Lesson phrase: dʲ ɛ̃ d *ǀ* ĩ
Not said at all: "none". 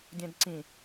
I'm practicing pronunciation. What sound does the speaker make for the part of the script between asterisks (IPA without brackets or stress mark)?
ǀ